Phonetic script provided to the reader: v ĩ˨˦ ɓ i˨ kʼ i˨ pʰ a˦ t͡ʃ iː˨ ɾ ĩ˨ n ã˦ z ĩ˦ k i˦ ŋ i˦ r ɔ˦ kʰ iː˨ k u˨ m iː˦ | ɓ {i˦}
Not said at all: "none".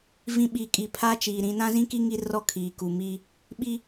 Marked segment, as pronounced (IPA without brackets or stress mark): i˦